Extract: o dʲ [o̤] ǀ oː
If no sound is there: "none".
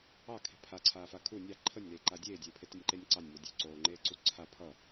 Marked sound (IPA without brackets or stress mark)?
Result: o̤